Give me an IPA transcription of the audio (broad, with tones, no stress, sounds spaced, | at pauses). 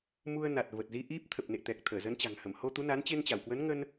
m u˧ ə̯ n a˨˩ t̚ v ə˨˩ t̚ z i˧ ʔ i˦˥ p̚ t̪ʰ ə˨˩ p̚ n ḛ˧˨ t̪ ɛ˨˩ k̚ t̪ʰ əː˧˩ z ə˨˦ n t͡ɕ a̤˨˩ ŋ h ə˧˩ m h o˧ t̪ u˨˦ n a˨˦ n t͡ɕ e˧ n t͡ɕ a˧˩ w k w ə˨˦ n ŋ ə˧ n